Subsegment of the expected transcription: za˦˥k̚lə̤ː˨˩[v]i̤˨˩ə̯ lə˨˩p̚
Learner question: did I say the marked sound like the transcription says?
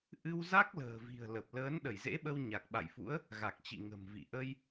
yes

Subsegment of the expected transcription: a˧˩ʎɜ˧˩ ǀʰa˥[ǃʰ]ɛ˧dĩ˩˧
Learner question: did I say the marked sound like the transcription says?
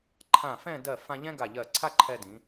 yes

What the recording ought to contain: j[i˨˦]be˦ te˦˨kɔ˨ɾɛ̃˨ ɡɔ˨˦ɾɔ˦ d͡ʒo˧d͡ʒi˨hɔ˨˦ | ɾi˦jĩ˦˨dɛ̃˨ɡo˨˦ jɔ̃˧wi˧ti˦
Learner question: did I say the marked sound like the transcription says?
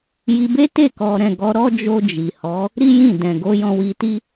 no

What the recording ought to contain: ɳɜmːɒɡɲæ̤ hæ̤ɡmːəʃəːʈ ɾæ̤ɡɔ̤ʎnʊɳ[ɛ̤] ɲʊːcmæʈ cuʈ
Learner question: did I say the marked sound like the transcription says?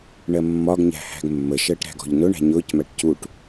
no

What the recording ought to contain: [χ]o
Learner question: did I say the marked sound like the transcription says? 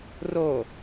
no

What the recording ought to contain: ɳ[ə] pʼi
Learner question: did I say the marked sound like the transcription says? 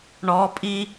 no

